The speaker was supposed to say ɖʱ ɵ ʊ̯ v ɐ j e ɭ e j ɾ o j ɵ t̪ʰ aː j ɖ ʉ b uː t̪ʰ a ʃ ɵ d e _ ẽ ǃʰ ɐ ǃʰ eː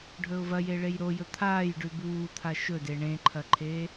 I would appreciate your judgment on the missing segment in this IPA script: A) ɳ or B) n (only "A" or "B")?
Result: A